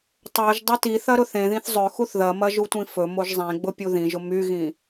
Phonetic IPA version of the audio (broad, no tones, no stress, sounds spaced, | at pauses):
tˤ o ʒ dˤ ʊ t i θ ɐ ɾ ʊ θ ẽ ð ĩ θ zˤ ɵ x u θ ð ɐ m ɐ ʒ u tʷ ĩ f ɵ m o ʒ zˤ ẽ ɡ͡b ʊ pʲ u ð ĩ ʒ ʊ m y ɣ ĩ